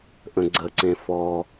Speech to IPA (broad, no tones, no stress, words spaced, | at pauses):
ʔə̃ɡ͡ǀəǀẽ fɔ